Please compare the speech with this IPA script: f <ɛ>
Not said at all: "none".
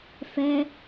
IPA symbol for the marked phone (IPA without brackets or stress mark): ɛ